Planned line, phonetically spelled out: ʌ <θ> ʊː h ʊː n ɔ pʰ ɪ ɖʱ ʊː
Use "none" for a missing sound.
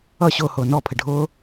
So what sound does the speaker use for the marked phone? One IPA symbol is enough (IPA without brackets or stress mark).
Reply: ɕ